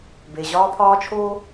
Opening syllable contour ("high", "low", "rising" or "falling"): low